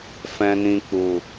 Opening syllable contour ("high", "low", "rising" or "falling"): low